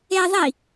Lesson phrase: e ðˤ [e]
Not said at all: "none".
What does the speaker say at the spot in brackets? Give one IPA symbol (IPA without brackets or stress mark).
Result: i